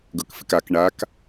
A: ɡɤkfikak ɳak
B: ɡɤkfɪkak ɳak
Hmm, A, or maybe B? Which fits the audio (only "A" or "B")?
B